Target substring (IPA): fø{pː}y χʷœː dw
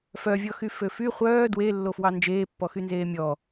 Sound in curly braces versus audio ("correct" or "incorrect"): incorrect